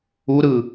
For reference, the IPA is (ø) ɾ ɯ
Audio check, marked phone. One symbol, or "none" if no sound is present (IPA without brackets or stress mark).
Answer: u